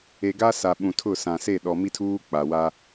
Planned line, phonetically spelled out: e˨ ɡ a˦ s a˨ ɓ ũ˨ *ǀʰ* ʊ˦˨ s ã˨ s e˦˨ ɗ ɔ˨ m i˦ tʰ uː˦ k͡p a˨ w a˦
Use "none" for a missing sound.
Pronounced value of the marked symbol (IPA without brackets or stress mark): tʰ